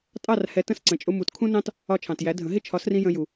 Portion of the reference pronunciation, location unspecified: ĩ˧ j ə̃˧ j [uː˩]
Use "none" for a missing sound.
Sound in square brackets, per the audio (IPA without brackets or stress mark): u˩